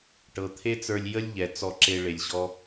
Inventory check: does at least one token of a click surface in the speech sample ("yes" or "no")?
yes